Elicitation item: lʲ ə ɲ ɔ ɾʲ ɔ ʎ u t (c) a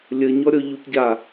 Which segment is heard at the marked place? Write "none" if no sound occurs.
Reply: ɟ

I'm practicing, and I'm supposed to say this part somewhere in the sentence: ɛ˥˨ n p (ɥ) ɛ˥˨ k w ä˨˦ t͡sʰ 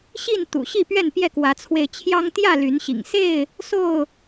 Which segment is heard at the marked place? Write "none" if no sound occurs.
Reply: j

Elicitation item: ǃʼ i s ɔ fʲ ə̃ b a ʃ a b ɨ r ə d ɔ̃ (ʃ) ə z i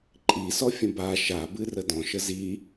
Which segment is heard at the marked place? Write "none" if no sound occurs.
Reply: ʃ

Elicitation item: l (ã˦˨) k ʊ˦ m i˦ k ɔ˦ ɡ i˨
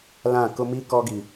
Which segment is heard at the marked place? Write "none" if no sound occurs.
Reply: ã˦˨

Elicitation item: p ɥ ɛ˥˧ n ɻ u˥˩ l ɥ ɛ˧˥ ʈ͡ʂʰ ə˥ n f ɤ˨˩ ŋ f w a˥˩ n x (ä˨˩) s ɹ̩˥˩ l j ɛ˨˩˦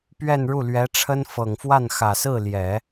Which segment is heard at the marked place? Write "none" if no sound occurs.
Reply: ä˨˩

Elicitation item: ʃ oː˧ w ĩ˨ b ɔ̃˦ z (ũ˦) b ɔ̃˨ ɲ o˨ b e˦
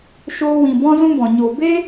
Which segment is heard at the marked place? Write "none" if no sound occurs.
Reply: ũ˦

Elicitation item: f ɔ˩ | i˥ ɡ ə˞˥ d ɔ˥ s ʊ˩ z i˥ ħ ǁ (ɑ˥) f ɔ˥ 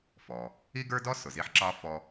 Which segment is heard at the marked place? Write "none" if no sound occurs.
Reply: ɑ˥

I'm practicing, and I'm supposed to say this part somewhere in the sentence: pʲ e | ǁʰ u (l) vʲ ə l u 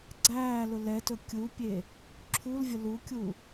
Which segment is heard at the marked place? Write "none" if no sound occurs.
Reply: l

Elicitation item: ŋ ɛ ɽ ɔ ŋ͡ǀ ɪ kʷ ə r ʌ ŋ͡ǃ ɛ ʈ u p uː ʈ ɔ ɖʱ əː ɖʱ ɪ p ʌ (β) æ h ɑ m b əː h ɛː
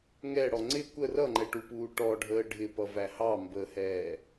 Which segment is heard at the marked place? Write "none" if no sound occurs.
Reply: v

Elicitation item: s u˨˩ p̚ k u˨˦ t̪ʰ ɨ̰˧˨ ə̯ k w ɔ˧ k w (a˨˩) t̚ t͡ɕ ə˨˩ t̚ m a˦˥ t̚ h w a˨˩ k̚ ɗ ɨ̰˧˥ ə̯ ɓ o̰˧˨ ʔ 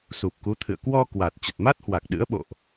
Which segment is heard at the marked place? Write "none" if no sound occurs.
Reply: a˨˩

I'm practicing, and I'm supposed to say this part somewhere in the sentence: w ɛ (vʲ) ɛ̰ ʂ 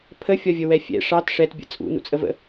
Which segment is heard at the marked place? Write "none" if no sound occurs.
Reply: fʲ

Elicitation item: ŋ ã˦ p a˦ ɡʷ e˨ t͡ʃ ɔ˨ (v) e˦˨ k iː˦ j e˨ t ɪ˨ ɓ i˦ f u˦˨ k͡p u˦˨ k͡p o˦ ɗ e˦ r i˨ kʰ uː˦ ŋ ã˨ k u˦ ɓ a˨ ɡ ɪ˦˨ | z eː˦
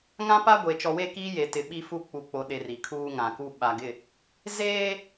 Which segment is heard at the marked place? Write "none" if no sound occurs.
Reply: w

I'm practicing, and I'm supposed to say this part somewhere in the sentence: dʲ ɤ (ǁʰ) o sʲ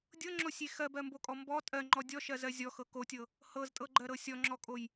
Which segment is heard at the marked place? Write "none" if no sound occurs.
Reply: ŋ͡ǁ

